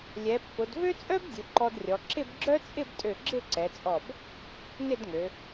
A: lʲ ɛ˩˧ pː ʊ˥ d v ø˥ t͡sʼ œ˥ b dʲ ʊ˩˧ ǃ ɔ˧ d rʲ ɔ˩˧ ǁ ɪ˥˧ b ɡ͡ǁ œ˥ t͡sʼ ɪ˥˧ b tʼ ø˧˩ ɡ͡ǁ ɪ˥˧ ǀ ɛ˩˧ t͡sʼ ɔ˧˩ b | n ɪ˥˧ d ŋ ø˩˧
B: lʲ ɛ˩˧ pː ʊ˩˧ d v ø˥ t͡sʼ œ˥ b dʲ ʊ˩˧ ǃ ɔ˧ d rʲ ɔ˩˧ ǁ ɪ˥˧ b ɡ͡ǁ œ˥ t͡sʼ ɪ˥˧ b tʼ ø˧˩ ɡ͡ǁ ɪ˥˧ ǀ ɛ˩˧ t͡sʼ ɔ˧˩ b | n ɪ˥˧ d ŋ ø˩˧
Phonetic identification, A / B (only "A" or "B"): B